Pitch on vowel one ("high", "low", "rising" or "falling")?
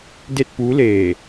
falling